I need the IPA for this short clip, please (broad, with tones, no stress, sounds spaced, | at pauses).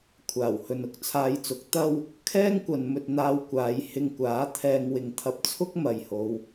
kʷʰ aː˨˩ w h ɵ˨ n ʊ˨ k̚ t͡sʰ aː˧ j t͡s ʊ˨˥ k̚ t̪ ɐ˥ w | kʰ ɛː˥ ŋ kʷ ɐ˨ n m ɵ˨ t̚ n̪ aː˧ w kʷ aː˨˧ j h ɪ˧ ŋ kʷ aː˨˥ t̪ʰ ɛː˧ ŋ w ɪ˨ ŋ t̪ʰ ɐ˧ p̚ t͡sʰ ʊ˥ k̚ m ɐ˨ j h o˨˧ w